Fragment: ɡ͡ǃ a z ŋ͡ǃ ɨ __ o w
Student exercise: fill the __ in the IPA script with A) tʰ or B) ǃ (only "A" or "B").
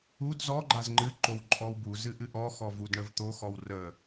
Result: B